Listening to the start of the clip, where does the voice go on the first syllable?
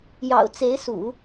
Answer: low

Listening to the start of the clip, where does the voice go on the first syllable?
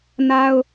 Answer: high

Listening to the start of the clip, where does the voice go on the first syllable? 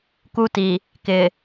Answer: high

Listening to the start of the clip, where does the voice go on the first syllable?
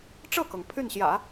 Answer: falling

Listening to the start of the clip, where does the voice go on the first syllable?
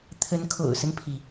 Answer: rising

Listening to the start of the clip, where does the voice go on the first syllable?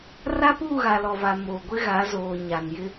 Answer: high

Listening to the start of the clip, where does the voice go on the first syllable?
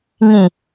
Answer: low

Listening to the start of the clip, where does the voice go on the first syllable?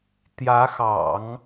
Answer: rising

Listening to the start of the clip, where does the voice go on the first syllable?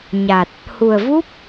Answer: low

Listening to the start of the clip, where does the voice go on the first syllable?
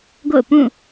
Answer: falling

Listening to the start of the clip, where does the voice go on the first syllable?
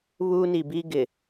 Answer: high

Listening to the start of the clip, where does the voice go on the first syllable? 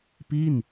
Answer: falling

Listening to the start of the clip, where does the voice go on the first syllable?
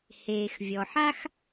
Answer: low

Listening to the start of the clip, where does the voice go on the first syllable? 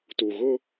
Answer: low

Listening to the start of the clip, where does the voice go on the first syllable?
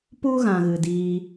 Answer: high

